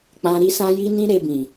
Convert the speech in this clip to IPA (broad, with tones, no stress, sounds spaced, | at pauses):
k͡p ã˧ ɾ i˦ s ã˦ j i˦ n ĩ˦ ɾ e˧ b ĩ˨